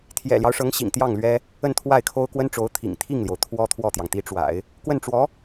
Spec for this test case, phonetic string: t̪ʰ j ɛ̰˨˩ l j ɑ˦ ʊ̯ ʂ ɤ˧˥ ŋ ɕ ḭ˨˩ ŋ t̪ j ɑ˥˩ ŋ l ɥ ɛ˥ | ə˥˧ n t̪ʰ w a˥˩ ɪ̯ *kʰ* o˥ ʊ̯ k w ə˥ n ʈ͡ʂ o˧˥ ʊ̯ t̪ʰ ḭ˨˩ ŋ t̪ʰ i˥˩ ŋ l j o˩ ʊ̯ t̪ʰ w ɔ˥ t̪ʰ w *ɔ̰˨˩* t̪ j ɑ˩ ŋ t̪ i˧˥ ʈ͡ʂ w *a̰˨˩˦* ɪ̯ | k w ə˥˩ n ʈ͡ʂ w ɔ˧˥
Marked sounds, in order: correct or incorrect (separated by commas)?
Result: correct, incorrect, correct